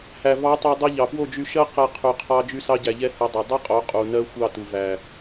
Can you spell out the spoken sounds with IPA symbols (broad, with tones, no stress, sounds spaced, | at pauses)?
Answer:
h æ˨ v ɑ˨˦ tˤ u˨ dˤ ɛ˧ ʎ ɑ˨ p w o˦˨ d͡ʒ y˧ ʃ ɜ˦ q ɛ˧ qʰ y˨ qʰ ɑ˧ d͡ʒ y˧ s ɑ˧ ɟ æ˨ ʎ ɛ˧ h ɛ˧ dˤ ɛ˨ dˤ ɛ˦ qʼ o˨˦ qʼ u˨ n ɜ˦ xʷ ɑ˦˨ t u˨ v æ˨